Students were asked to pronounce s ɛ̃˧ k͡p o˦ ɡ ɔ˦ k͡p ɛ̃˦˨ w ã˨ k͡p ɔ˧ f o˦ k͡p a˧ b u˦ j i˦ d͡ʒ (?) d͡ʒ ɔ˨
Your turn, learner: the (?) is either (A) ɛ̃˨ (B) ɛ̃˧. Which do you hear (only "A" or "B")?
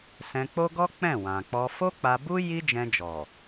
B